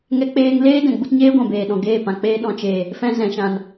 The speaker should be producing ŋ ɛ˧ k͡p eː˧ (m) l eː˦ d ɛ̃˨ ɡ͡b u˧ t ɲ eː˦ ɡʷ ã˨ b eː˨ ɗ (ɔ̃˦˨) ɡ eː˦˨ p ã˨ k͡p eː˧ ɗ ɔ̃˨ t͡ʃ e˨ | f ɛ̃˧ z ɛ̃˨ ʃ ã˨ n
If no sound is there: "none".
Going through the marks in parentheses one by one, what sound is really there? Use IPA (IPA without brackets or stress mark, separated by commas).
ŋ, ɔ̃˨